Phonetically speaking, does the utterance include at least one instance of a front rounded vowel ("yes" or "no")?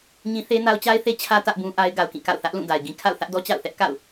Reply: no